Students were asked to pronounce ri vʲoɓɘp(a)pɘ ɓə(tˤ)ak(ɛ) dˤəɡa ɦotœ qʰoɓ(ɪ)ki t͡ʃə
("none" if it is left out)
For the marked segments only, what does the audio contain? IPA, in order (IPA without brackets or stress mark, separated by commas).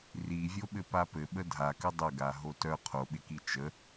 a, dʱ, ɘ, ɪ